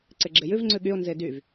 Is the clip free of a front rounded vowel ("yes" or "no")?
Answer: no